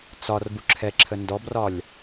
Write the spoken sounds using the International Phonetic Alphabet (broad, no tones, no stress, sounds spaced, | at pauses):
t͡s ɒ r b u ǁʰ ɛ ǁʰ ə n d ɔ b r ɒ lʲ